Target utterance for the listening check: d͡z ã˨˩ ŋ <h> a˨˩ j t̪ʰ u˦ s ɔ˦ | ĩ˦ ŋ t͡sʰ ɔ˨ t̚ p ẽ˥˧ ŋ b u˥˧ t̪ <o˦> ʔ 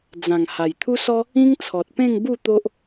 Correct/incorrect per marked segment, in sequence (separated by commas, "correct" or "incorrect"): correct, correct